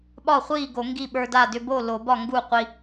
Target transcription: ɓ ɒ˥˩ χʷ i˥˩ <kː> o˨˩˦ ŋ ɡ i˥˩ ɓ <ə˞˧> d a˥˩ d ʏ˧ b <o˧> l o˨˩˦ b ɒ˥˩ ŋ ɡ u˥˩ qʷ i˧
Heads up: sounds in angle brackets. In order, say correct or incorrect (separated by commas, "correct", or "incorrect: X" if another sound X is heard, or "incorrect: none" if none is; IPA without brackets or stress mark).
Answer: incorrect: ɡ, correct, incorrect: o˥˩